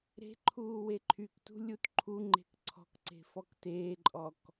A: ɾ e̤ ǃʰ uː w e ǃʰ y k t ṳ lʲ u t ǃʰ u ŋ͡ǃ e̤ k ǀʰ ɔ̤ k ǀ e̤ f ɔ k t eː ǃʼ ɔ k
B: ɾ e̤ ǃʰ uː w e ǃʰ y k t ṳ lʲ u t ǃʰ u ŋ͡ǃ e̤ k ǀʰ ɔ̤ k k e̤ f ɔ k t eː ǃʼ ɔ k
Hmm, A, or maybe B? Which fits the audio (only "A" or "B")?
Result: A